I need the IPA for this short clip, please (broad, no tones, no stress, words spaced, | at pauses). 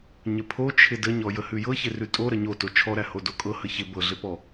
ɲəpʰot͡ʃʰɪ dəɲɔ jəhʉjɤçɪ rʉtʼo ɾəɲoto t͡ʃʰɔɾæho dokʼɤ həçɪ bɤɮɪpɔ